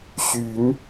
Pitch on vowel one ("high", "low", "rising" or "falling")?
rising